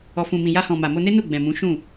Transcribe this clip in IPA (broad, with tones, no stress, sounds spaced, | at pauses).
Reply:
ɔ˨ f ũ˨ m ĩ˨ j a˧ h ɔ̃˨ m a˨ m o˧ n e˦ n u˦˨ ɡ͡b ɛ̃˨ m ũ˨˦ ʃ ũ˦˨